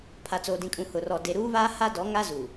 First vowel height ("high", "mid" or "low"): low